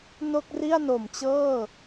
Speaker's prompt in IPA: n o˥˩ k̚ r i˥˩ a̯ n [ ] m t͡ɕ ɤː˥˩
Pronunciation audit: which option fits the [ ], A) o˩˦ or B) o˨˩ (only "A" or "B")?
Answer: B